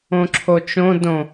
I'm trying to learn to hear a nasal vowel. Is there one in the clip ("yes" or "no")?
yes